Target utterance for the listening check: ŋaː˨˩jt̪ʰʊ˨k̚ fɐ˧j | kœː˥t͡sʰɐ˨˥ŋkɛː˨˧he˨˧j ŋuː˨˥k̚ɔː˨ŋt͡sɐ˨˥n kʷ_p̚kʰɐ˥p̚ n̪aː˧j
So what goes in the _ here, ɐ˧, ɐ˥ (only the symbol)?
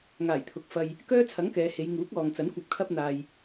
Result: ɐ˧